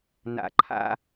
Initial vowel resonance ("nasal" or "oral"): oral